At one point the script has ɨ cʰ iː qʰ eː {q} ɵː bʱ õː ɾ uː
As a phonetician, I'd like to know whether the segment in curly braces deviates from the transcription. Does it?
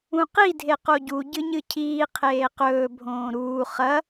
no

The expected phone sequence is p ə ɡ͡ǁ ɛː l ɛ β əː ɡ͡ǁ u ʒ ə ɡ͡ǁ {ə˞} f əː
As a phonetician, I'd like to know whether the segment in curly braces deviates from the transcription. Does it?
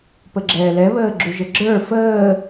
no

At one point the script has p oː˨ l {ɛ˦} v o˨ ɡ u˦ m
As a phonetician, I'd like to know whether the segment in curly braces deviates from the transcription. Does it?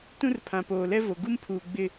no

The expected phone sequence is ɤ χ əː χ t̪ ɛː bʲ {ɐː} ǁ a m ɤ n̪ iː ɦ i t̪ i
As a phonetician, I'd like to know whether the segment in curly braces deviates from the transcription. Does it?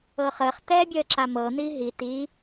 yes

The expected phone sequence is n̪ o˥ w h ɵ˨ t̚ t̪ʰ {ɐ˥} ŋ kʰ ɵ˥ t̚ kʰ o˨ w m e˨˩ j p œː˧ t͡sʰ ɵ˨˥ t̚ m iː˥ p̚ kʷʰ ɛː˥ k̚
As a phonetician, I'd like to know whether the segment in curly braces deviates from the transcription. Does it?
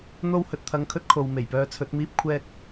yes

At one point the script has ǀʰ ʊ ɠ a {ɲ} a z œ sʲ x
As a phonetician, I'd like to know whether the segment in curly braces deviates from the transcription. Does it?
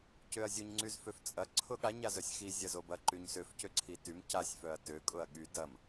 no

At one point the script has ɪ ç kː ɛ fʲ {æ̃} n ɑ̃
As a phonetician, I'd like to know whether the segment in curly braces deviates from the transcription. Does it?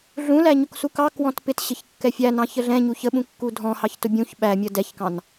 yes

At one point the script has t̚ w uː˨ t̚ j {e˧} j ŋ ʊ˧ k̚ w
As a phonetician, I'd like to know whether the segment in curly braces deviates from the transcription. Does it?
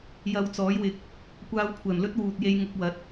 no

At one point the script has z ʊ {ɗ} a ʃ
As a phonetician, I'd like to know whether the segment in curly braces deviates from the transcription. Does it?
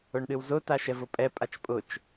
yes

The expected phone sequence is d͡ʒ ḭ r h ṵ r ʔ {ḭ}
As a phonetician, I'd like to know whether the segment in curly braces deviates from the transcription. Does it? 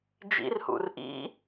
no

